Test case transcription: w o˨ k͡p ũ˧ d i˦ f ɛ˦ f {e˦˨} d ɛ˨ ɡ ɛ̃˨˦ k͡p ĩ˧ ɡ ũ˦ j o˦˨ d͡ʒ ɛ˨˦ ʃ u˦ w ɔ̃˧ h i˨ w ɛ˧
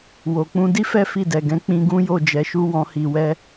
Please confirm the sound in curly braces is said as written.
no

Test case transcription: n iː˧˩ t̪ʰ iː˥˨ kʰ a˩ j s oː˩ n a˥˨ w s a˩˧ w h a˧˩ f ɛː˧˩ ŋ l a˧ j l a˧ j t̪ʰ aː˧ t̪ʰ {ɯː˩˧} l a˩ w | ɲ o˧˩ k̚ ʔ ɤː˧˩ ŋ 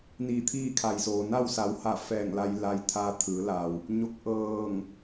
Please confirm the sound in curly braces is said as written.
yes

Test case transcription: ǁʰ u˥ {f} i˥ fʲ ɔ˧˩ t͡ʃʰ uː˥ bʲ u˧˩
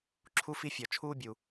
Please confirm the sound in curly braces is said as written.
yes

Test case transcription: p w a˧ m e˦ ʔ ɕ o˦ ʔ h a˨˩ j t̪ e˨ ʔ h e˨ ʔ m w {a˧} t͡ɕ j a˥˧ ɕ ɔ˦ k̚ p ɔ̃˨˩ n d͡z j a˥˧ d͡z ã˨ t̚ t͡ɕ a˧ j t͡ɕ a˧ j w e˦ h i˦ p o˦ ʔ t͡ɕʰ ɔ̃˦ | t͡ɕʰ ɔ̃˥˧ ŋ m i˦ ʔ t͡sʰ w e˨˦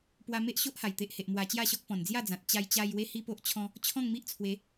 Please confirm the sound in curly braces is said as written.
yes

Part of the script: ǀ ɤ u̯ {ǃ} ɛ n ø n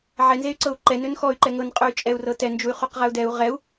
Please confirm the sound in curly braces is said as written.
yes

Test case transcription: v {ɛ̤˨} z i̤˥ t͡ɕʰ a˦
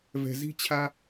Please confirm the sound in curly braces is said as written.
yes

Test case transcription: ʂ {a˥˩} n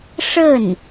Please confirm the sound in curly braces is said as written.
no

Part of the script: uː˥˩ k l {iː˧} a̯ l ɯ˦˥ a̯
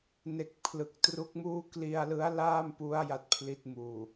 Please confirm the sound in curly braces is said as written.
no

